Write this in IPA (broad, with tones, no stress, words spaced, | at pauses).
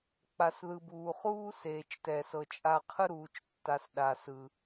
k͡pa˨sðɯ˨ buː˨χuː˦ seː˨t͡ʃtɛ˨sɤ˨ t͡ʃʼa˧qʰɯ˦ ɾuː˨t͡ʃtːa˨s ɗa˨sɯ˨